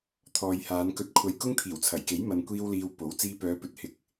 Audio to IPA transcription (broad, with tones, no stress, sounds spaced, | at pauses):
t̪ʰ ɔː˨ j h aː˨˧ n k ɵ˧ t̚ kʷʰ ɐ˧ j k ʊ˥ ŋ t̪ʰ iː˨˩ w t͡sʰ ɐ˨˩ j k e˨˥ j m ɐ˨ n kʷ iː˧ w l iː˨ w p o˨˥ w t͡s iː˧ p œː˨˧ p ɵ˨ t̚ h ɪ˨ k̚